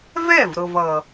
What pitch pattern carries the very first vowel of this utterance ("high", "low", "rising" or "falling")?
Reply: falling